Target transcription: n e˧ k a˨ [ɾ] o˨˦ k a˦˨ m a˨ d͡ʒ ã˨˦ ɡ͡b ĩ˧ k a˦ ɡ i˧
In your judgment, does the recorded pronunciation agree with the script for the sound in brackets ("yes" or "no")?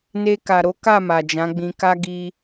yes